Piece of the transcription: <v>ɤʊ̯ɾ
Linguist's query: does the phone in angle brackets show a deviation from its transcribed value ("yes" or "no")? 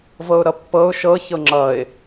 no